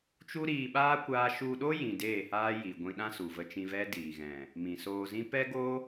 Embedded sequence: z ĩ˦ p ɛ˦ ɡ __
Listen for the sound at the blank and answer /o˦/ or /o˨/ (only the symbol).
o˦